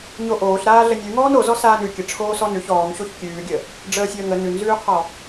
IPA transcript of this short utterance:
ɲoʔoːɬ ɾaːɮənʲʉ ŋɔːnozɔ saːnʉ kʲə ʈ͡ʂʰoːsɔnʉç ɔːŋɕoç kʲʉːɡʲə | ɖ͡ʐəːsʲəːŋə nʉnzʉːqʰɔ

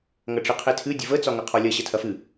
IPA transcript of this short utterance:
ŋɐʈ͡ʂɨqʰetʰɨ dʲəvə t͡sɒŋɐqʰɔlʲɐ ɕɐtʰɐfɨ

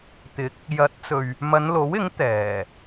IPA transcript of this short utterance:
t̪ɪ˨˥k̚ | jɐ˨˥t̚t͡sɵ˨ɥ | mɐ˨˧nlo˨˥wɪ˨˥ŋ t̪ɛː˨˩

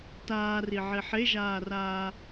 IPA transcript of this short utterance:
taːriʕe ħeʒaːraː

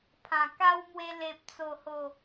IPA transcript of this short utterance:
pʰã˨˩ka˦wmwe˧ le˨p̚t͡so˨˩ho˨˩

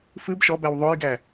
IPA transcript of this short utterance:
fɨb ʃɔbæw ðˤojɡæ

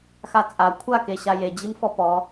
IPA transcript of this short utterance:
xat͡sʼa kʷʰake ɕajed͡ʑim fɔpɔ

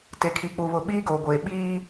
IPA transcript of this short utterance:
te˨kʰiː˨k͡pu˨βʊ˨ ɓiː˦ɡoː˨ɡʷeː˨ ɓiː˦

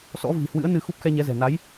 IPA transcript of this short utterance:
sɔ̰˧˥ vi̤˨˩hwɨ̰˧˥ə̯ nɨ˧ xu˦˥p̚xɛ˧ɲɛ˨˦zɛ̤˨˩ na˨˦j

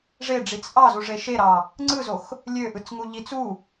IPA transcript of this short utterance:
ʐeɖ͡ʐit͡s ʔɑzuʐe ʃeɾɑ | ŋ͡ǀɯzox | lʲøʔɯt͡sŋu ʎit͡s u

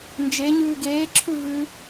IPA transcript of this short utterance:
nd͡ʒe ɲʉːɡeːǁʰʉ vʉ

